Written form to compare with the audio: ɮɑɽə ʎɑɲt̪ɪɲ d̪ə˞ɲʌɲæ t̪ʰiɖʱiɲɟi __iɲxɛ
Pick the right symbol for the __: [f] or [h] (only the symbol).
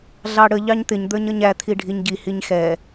h